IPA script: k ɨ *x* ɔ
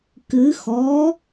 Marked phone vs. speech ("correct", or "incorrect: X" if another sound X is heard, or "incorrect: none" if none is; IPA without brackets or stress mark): correct